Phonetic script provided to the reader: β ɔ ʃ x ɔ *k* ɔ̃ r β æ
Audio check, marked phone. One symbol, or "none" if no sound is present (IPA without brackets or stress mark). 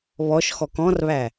k